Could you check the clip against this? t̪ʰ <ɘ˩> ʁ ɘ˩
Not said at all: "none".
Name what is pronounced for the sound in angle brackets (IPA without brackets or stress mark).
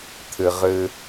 ɘ˩